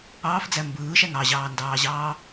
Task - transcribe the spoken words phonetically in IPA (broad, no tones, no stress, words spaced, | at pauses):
ɑːfd͡zæ mbɯːʃæŋ ɑʑɑːndɑːʑɑː